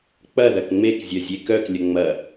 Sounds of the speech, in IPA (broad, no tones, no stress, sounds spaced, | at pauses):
k͡p ɐ ð ɐ k ŋ͡m e k zʲ œ zʲ e k œ k lʲ ə ŋ͡m ɐ